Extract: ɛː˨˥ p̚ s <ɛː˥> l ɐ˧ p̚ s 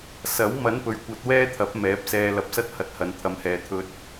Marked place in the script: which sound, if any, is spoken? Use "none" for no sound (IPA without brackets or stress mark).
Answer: ɛː˧